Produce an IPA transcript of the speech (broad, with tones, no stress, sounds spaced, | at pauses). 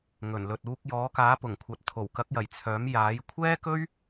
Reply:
ŋ ɵ˨˩ n l ɵ˨ t̚ uː˧ k̚ j ɔː˨˥ k aː˨˥ p ʊ˨˩ ŋ kʷʰ ɐ˨ t̚ t̪ʰ o˨˩ w k ɐ˨˥ k̚ j ɐ˨˩ j t͡sʰ œː˨˥ m j aː˨˥ j kʷʰ ɛː˥ k ɵ˥ ɥ